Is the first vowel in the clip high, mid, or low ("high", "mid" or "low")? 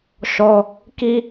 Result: mid